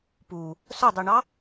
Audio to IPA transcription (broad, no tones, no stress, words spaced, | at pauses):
pu | sœdˤiɳɑ